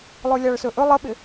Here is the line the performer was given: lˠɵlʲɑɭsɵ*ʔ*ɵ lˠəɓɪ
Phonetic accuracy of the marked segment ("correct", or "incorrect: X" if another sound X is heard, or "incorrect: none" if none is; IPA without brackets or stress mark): correct